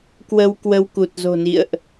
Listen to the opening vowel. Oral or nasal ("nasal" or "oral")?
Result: oral